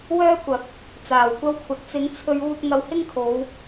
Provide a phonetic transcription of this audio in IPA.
w œː˥ kʷ ɐ˨˥ k̚ | t͡s aː˨˩ w kʷ ɐ˥ w kʷʰ ɐ˧ t̚ t͡s ɪ˨˥ ŋ t͡sʰ ɵ˧ ɥ uː˧ t̚ ŋ ɐ˧ w h ɪ˥ ŋ kʰ o˨˧ w

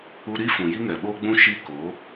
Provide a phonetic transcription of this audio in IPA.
u˧ ɾ i˦ f ũ˨ j i˦ ŋ ɛ˨ ɓ oː˦ ɡ͡b ũ˦ ʃ i˦ k o˨˦

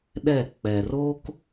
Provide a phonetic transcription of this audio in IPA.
ɗ ɛ˥˧ k͡p ɛ˧ r o˥ k

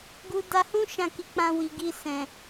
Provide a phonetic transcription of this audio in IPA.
ɡ u˧ d a˧ h ũ˦ ʃ ã˦˨ k i˧ k͡p ã˧ w i˨ ɡ i˧ s ɛ̃˨

